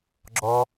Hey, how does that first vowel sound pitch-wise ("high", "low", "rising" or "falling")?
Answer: high